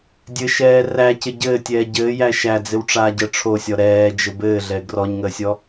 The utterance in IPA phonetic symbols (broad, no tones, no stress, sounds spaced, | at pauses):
dʲ ɘ ʃ ɛː r æ c ɪ ɟ ɘː tʲ ɛː ɟ ɘː j æ ʃ æ d͡z ɪ w ʈ͡ʂ aː ɟ əː ʈ͡ʂʰ o sʲ ɔ ɾ ɛː d͡ʒ ə b ɘː ɮ ɛ ɡ r ɔ ɲ ŋ əː sʲ ɔ